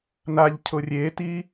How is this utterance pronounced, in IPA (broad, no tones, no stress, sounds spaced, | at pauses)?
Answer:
n a ʎ cʰ ʊ rʲ eː t iː